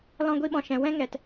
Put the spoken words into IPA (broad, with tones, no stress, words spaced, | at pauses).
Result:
lɔ̃˧ɡʷi˧ɓɔ̃˨ʃɛ̃˨ wɛ̃˦ŋɛ˨t